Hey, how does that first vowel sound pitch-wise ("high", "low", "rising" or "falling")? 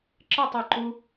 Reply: falling